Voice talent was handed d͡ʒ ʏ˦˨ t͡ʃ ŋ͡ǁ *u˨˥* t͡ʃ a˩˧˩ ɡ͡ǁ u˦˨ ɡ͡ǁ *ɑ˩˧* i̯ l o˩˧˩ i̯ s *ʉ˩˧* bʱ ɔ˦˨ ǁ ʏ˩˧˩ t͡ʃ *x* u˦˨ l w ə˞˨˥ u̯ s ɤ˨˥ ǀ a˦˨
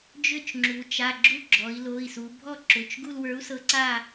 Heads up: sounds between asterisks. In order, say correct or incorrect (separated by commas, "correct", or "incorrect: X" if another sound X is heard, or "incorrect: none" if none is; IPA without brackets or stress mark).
incorrect: u˩˧, incorrect: ɔ˩˧, incorrect: u˩˧, incorrect: ɡ